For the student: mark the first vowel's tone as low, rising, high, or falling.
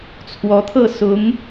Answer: rising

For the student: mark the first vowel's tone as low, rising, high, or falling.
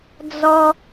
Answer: high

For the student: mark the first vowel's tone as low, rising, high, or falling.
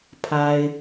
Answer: high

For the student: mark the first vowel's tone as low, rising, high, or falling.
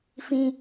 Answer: high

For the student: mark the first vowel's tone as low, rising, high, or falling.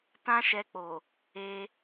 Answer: high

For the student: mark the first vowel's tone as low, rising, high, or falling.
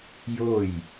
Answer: falling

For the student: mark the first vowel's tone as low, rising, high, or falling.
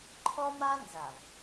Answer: high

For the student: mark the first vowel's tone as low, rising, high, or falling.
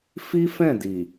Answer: high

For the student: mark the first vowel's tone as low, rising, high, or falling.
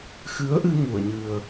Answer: rising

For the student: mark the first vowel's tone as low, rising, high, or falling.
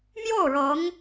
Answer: falling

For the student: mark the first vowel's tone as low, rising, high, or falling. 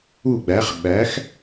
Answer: falling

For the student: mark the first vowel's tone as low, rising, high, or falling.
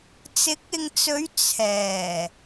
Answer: rising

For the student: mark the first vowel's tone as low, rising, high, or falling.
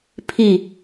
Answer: falling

